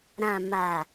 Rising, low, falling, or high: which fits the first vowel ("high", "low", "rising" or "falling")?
low